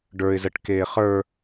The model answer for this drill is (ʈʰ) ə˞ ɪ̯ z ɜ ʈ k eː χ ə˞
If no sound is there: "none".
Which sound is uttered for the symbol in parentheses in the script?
ɖ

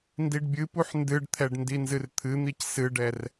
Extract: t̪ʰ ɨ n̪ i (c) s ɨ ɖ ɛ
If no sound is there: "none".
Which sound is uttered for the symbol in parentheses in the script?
c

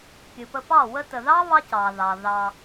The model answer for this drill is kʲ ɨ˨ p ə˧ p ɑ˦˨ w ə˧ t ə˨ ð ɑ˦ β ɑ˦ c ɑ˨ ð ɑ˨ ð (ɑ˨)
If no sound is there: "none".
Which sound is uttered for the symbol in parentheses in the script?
ɑ˧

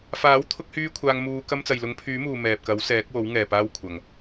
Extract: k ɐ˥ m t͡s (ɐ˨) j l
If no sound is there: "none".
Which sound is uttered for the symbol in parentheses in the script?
ɐ˨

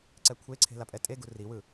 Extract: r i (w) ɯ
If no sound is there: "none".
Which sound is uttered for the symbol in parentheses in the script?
w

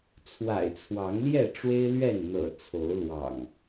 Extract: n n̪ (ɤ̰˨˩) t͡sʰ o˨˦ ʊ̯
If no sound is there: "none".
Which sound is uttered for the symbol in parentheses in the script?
ɤ̰˨˩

